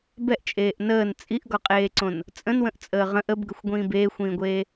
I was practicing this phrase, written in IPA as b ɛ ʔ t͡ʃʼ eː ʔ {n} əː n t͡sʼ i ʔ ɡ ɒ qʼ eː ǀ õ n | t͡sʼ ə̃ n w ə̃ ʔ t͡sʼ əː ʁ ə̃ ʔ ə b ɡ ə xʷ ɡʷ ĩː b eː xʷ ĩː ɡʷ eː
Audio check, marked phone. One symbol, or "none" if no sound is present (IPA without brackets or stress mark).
n